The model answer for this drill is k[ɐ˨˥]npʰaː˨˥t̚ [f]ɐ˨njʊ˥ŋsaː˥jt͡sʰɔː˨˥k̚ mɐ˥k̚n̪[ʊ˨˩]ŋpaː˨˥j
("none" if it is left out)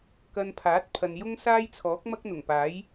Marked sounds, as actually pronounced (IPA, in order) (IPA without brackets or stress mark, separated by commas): ɐ˧, pʰ, ʊ˨˩